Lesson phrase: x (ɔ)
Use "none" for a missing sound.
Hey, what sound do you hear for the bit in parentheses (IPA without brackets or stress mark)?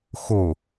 o